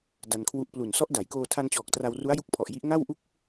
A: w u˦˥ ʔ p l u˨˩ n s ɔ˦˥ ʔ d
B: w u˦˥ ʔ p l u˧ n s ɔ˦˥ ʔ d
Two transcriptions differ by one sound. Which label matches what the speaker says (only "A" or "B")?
A